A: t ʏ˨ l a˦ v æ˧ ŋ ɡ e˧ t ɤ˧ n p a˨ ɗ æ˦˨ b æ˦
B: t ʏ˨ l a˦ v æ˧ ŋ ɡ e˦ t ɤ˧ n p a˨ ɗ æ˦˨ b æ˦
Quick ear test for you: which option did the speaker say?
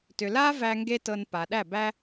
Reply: B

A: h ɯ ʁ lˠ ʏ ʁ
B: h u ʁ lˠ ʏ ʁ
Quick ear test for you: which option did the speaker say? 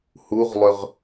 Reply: B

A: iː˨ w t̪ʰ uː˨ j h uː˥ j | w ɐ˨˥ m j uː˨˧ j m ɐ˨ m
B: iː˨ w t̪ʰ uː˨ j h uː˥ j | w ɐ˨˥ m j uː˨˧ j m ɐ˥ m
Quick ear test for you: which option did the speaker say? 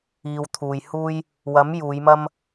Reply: B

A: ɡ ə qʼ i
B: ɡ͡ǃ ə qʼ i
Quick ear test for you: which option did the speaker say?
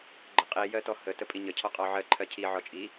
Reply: B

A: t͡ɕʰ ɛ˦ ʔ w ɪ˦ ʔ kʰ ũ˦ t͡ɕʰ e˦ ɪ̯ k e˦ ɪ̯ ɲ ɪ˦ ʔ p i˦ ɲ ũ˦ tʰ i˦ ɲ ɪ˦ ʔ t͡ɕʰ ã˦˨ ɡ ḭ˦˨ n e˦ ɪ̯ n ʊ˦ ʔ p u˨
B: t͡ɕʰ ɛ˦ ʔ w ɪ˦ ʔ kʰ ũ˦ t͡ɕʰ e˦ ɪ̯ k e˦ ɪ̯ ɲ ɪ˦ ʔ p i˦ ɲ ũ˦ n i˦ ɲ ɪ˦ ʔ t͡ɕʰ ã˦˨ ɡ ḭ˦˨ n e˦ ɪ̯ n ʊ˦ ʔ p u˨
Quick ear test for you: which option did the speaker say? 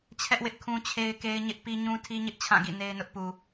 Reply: A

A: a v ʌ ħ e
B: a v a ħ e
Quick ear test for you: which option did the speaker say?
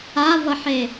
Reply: A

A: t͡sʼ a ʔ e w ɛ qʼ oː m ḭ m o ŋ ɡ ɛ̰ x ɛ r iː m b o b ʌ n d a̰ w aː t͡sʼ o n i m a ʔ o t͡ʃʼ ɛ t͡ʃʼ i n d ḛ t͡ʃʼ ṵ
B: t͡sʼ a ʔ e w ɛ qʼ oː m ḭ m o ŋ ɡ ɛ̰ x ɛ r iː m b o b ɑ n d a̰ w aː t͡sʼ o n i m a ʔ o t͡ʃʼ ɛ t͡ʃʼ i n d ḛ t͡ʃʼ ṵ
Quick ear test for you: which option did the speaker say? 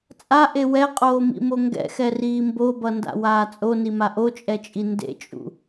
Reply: A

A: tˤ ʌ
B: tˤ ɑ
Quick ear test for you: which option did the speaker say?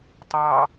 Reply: B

